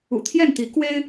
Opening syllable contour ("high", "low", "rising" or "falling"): low